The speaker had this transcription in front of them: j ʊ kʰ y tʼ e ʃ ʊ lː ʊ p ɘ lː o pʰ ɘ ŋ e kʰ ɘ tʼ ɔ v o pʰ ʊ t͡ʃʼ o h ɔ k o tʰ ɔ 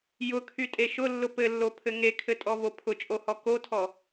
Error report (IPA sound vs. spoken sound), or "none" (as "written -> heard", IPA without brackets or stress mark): none